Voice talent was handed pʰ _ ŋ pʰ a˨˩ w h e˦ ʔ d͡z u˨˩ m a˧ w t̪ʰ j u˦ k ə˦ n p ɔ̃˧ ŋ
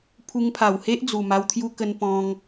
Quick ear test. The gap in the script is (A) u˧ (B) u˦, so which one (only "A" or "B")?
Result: A